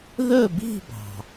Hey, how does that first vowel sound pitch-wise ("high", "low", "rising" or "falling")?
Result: falling